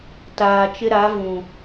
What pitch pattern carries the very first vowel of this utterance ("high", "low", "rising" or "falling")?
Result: low